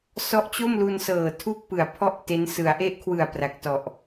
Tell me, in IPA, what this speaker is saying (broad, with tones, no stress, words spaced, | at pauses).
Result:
sɔ˦˥ʔt͡ɕo˥˩mlu˧nsɤː˨˩ tʰu˥˩k̚pɯ˨˩a̯ pʰɔ˥˩ʔ te˦˥n sɯ˩˦a̯ʔe˦˥ʔkʰwɯ˨˩a̯ pra˨˩k̚tɔ˨˩ʔ